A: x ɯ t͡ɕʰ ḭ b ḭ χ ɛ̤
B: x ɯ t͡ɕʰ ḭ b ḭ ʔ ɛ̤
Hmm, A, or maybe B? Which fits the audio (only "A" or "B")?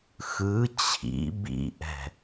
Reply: B